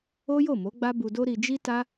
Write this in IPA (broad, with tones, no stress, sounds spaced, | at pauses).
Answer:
o˦ j o˦˨ m o˨˦ ɡ͡b a˦ b u˧ d o˦ ɾ i˧ d͡ʒ i˦ t a˦